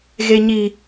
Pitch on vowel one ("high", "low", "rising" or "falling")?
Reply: high